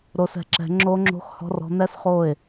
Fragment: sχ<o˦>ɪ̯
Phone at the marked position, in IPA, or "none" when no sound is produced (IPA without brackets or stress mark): o˦˨